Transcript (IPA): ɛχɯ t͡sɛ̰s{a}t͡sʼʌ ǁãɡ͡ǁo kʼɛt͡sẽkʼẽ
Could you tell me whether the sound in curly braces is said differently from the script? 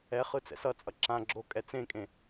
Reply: yes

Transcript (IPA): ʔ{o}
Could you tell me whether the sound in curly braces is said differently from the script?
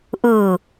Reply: yes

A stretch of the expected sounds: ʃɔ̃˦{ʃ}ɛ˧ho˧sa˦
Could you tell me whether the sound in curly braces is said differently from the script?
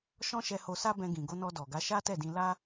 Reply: no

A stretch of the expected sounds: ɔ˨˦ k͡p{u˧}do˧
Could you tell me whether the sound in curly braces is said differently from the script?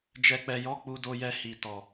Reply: no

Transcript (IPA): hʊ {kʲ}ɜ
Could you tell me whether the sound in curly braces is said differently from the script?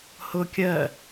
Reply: no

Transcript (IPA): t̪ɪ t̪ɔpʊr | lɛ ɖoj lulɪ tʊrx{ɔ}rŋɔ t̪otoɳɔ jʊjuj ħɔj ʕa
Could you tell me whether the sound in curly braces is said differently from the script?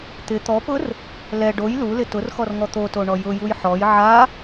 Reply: no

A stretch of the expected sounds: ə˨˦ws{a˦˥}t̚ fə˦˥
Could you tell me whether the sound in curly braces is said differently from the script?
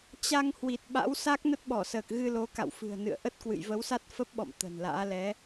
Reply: no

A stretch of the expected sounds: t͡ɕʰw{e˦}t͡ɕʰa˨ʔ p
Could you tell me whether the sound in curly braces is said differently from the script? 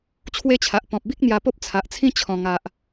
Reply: no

